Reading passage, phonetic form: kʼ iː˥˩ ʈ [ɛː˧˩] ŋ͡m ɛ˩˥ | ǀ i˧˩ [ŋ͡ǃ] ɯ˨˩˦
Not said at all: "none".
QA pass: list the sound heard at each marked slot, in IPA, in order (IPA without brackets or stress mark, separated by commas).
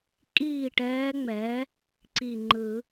ɛː˧˥, ŋ͡ǃ